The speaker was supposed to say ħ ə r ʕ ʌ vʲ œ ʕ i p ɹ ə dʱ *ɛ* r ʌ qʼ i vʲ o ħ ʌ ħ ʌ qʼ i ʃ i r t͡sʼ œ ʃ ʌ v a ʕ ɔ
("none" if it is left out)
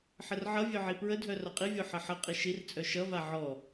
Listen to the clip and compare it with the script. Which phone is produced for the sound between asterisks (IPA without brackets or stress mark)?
œ